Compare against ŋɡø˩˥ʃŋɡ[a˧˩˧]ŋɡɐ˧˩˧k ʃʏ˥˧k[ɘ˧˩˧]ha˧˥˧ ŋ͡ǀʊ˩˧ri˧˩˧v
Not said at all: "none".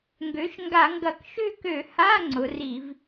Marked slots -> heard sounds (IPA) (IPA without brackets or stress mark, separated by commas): a˧˩˧, ø˧˩˧